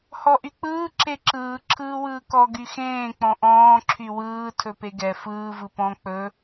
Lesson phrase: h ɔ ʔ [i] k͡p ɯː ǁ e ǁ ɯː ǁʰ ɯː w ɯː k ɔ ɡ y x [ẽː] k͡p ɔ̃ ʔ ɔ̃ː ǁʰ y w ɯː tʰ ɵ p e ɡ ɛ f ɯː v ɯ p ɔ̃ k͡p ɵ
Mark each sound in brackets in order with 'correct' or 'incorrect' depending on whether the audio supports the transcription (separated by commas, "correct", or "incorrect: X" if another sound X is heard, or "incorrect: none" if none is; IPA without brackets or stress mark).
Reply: incorrect: y, correct